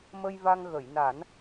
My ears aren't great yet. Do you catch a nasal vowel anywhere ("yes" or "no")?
no